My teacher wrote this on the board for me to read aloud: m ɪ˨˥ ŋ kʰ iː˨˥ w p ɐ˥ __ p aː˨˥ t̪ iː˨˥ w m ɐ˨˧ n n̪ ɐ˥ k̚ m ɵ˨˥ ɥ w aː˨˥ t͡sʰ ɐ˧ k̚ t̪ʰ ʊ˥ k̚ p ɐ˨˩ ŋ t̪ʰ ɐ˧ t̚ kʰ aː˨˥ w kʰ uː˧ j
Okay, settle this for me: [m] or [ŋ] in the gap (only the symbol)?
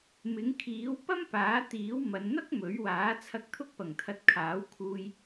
m